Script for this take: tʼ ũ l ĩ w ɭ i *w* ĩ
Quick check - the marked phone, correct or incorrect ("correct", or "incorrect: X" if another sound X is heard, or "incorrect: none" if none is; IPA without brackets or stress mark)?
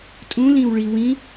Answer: correct